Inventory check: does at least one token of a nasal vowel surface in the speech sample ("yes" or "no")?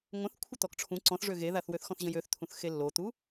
yes